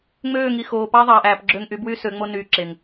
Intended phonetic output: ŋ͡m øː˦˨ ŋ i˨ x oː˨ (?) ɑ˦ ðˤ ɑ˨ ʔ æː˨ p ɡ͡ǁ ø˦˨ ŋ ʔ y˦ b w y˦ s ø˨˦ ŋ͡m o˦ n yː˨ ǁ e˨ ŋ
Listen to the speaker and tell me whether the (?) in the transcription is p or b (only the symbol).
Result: p